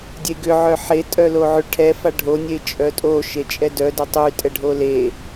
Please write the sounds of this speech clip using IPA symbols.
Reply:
dʲeɡʏ ʕœħe tʼœloʕʏ ʈʰɛ faɖʱo nʲet͡ʃʼœtʼo ʃet͡ʃʼɛdœ dʏtˤy tʼɛɖʱole

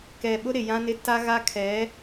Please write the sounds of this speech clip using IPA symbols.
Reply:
kɛ˨ɓʊ˦ ɾɪ˨jã˦nɪ˦ ta˦ɣa˦ kʰɛ˨˦

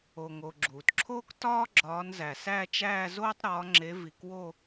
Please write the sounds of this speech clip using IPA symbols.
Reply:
o˩ŋo˩ ɡ͡ǁuː˩tǁʰoː˥k tɒː˥ ɡ͡ǁɒː˨˦nzæ˩sæ˥˧t͡ʃæː˥˧ zoː˥tˤɾɒː˨˦ŋ͡ǁe˨˦ vi˩kwo˥˧

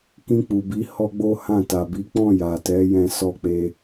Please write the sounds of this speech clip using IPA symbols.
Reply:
kĩ˧k͡pu˨bi˨˦ hɔ˦ɡ͡bo˦hã˦˨ ta˨bi˨˦k͡pɔ̃˦˨ ja˨tɛ˨˦jɛ̃˧ sɔ˧k͡pe˧

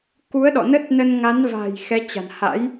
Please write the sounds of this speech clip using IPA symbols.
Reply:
ku˨˦ə̯ɗɔ̰˧˨ nə˦˥t̚nə˧nŋa˨˦n va̤˨˩j xɛ˨˦t͡ɕa̤˨˩n ha̰˧˥j

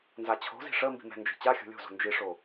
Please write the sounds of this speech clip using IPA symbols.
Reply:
nzat͡ɕʰo̤zi̤ ʂə mbi̤mɛ̤nd͡ʒi̤ t͡ɕaxʲo̤ lʲo̤zo̤ nd͡ʒiʂo

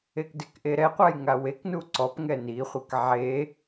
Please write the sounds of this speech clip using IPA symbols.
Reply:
ekdɪkʔe ɾɛqʷaj ŋaweknu ǀɔp ŋɛniχʷek ʕe

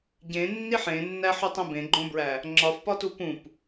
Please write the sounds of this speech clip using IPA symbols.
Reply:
ɟẽnːiħ ẽnːæħutˤĩ bẽɡ͡ǃõbɹæ | ŋ͡ǁɒfpɒtu pũp

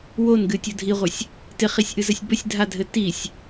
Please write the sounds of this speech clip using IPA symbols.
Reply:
wonɡɨ tʲodʱiʁʷɘsʲ | tɪχisʲʔɨzəsʲ bəsʲdʱadʱɘ tisʲ

